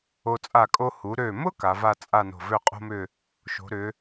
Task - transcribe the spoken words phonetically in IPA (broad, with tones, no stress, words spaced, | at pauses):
o˧ t͡sʼa˧˩kʼo˧ hu˩˧ɾø˧˩mʊ˥ ka˩˧va˥˧ t͡sʼa˥˧no̤˧˩ vø˥˧qʼo̤˥mʏ˥˧ | ʃo̤˩˧ɾʏ˩˧